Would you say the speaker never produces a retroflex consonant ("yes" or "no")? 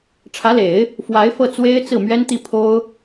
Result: no